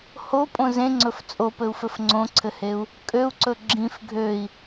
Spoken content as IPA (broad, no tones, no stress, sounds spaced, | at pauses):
h o pʼ õ z ẽ ŋ͡ǀ ɵ f t͡sʼ o p ɘ u̯ f ɘ f ŋ͡ǀ õ ǀʰ ɘ h e u̯ | kʼ ø u̯ ǀ ɵ ɡ͡ǁ ĩ f ɡʱ ø i̯